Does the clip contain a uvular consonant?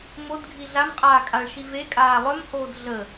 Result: yes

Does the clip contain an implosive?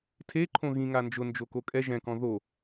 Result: no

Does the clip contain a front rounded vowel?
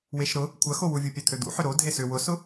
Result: yes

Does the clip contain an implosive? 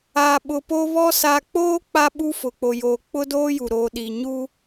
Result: yes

